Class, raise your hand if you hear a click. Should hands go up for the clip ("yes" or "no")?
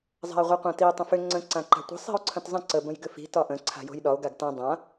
yes